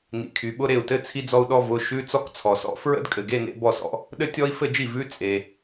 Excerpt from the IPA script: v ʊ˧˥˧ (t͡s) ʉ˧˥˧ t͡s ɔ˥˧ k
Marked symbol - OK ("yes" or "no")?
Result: no